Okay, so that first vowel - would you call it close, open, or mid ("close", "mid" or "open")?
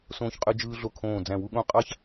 mid